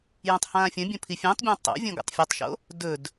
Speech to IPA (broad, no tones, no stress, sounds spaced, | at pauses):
j ũ tˤ h ãː fʲ ɐ̃ bʲ õ pʰ i fʲ ẽ tˤ bʲ ã tˤ o̰ vʲ õ ɡ o̰ tˤ fʲ ɐ tˤ ʃ o̰ | d ɵ d